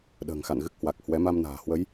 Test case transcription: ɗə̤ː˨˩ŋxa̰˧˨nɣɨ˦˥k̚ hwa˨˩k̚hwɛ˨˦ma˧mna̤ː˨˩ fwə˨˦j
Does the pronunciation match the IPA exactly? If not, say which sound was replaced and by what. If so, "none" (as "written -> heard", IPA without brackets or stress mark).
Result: f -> h